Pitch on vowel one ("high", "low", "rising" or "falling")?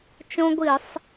high